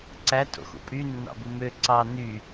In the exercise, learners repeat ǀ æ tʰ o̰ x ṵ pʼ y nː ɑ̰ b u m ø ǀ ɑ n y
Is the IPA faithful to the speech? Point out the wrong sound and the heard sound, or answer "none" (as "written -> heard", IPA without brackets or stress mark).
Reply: none